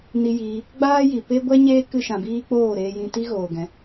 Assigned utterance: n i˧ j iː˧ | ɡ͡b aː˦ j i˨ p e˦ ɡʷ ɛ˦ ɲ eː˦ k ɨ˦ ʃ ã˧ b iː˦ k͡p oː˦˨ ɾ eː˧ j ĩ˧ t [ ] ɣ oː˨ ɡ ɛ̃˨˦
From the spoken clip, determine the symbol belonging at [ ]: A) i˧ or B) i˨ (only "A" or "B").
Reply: A